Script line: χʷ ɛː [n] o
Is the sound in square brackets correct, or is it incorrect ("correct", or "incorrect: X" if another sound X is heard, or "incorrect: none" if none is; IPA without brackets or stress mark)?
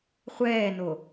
correct